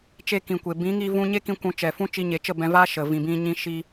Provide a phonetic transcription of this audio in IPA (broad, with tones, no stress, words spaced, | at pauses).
t͡ʃe˧kĩ˨kʷe˨ bĩ˨˦ŋi˧vũ˧ ɲe˦kĩ˧ kʷũ˨˦t͡ʃɛ˨fũ˦ t͡ʃi˧ɲe˨˦t͡ʃə˦˨ bɛ̃˧va˦ ʃə˨ vĩ˨bĩ˧ ɲĩ˦ ʃi˦